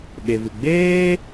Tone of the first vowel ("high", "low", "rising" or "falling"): low